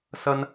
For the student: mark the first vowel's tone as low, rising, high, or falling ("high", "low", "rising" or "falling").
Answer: high